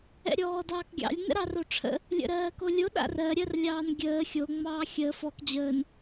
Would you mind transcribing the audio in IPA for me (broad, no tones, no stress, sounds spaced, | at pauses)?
ɛ̰ ɾʲ ɔː d ɑː k ɡʲ ɑ̰ lʲ n ə̰ ɾ ɑ r o ʈ͡ʂʰ ə̰ | lʲ ə̰ ɾ ɜː k o lʲ o ɗ a̰ r ɜ ɾʲ ɜ r lʲ ɑː n ɡʲ əː xʲ o ŋ͡m ɑː xʲ əː f ɔ k d͡ʑ əː n